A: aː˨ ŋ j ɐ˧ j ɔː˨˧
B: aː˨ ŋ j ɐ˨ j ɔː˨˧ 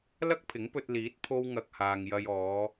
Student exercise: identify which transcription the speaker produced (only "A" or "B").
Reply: A